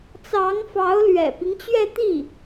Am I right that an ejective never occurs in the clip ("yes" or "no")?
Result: yes